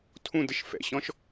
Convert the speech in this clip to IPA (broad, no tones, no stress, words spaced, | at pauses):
tʰũdəʃ fɛ̰ɕɔ̃ʃ